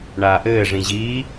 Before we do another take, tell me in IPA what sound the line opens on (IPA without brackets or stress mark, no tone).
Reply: ɳ